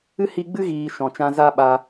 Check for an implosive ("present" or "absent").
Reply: present